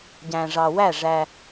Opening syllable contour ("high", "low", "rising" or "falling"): low